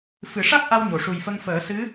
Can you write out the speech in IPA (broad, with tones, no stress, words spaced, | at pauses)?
fɨ˨˩˦ʂa˦˥k̚ʔa˧w ɲo˨˩˨ʂu˨˩jfə˧ŋfəː˨˩˦ sɨ˧˥